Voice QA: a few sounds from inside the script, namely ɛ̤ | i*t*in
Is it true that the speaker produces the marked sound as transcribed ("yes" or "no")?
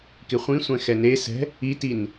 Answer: yes